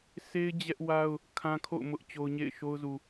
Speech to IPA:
sʰe˦ɪ̯ d͡ʑɛ˦ʔwa˦ʊ̯ | kʰã˦ kʰo̰˦˨ʊ̯ mʊ˦ʔt͡ɕo˦ʊ̯ ɲḛ˦˨ɪ̯ʃo˦ʊ̯zu˨

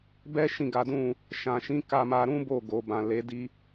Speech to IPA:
bɛ˦ʃĩ˦˨ɡa˨˦dũ˦˨ | ʃã˨ʃĩ˨˦ ka˧ma˧ɾũ˦ bo˦˨ ɡo˨bã˨le˨˦ di˧

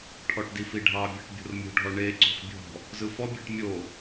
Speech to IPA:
ʈʰɔʈdifiɖʱɑ bʲɑʈbʲo̤rmʲo̤ɖʱɔ ɳe ǀo̤xbʲɔ̤ | zɯfɔbʲeʈ mʲo

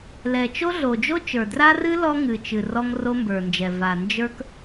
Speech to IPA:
lɛ˨t͡ʃo˦ɮo˨ d͡ʒo˦t͡ʃə˞˨dra˦rɨ˦ lɔ˦ ŋɨ˨t͡ʃɨ˨ rɔ˦ŋro˦mbə˞˨nd͡ʒɛ˨ va˨nd͡ʒə˞˦k

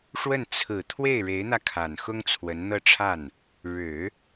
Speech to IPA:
ʂwə˥˩n t͡sʰɹ̩˨˩ t̪ʰwe˥˩ɪ̯ɻe˧˥ɪ̯n̪ä˧kʰa˨˩n xʊ˥ŋt͡sʰwə˧˥nn̪ɤ˥˧ʈ͡ʂʰa˥˩n | ɻɻ̩˨˩˦

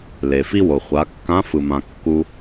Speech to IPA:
le˩fi˥wo˩ χʷa˩˧kːã˧˥fɯ˩mã˩ kːu˧

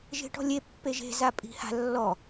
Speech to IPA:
ʒe̤ʈɔ̤lʲe pːeʒe̤ zapʼi̤ha̤ lːɔ

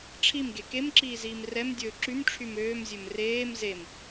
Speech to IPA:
ʈ͡ʂʰimɡe kemǁiːziːm rɛmdʲɵː ǁymʈ͡ʂʰym øːmzʲɵm reːm zem

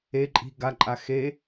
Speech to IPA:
e ǃʼi̤ ɡaǃʼa xe

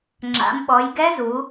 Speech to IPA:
ŋ͡ǁa̰˩˧mɓɔ˩˧jɡɛ˦˥ zu˩˧

